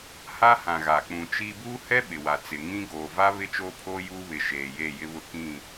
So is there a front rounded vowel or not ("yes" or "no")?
no